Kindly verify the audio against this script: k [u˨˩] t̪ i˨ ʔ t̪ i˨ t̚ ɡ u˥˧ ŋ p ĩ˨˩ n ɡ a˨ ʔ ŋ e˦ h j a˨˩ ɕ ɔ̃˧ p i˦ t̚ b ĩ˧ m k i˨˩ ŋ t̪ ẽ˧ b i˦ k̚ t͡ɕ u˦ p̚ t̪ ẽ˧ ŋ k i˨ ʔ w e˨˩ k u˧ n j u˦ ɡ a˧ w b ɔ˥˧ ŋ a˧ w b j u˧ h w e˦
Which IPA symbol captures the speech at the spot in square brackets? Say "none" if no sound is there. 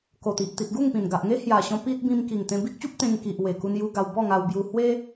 o˨˩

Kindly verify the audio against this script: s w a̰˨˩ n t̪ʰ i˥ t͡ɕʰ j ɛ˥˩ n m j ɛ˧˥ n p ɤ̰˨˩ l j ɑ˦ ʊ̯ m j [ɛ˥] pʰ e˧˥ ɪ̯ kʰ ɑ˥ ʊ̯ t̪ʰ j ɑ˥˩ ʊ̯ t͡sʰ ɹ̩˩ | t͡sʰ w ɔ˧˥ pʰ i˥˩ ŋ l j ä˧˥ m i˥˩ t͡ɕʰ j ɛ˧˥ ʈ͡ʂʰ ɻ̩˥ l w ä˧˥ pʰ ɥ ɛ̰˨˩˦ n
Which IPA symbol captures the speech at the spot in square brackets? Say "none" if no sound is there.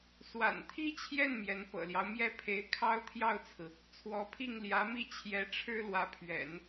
ɛ˥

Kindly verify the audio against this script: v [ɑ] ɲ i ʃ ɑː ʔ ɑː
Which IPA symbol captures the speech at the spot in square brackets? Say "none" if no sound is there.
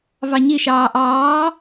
ɑ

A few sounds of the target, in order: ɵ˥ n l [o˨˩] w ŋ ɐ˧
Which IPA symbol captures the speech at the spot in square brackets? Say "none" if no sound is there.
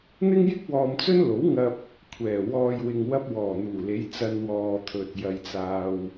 o˨˥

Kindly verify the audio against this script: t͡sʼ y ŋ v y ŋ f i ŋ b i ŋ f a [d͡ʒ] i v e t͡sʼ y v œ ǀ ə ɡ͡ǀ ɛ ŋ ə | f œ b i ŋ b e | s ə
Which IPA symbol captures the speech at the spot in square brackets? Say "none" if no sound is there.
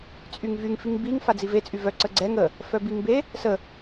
d͡z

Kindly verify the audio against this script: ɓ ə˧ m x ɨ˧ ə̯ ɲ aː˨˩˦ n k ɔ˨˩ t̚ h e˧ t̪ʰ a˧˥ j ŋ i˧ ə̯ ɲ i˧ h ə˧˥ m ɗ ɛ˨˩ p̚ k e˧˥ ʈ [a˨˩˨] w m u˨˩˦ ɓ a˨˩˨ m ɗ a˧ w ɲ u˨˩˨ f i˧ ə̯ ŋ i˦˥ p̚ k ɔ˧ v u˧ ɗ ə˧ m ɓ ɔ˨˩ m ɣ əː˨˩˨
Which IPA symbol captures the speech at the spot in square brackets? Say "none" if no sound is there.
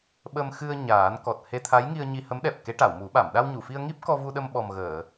a˨˩˨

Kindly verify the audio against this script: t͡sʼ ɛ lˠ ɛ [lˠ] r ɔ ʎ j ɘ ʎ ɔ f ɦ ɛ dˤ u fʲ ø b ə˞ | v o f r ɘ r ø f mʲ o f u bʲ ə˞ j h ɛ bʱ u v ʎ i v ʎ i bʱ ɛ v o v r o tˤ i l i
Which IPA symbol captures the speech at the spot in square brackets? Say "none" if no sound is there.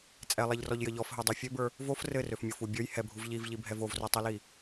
ʎ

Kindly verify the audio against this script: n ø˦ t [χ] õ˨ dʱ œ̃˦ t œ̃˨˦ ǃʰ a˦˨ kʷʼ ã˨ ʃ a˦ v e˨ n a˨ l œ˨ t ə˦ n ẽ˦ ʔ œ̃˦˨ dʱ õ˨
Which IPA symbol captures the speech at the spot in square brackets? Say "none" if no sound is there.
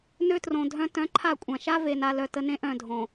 r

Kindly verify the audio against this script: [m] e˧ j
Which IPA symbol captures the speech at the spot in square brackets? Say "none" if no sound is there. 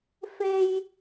f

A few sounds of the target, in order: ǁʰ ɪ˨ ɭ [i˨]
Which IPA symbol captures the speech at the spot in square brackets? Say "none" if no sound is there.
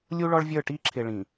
ĩ˨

